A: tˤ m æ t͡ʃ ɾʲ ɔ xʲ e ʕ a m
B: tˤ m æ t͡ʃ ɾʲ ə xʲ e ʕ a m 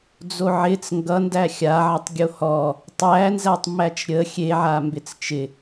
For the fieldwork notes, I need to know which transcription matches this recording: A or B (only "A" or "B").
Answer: B